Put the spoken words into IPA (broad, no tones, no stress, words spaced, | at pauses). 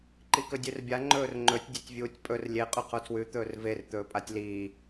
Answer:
ǃikɵdʲʉrbʲa ŋ͡ǃɵːrŋ͡ǃɵtʲ dʲetʲvʲuːtʲpʼɵr lʲe qʼʉqʰotʰwʉ t̪ɵːrver t̪ɵːpʼatʲliː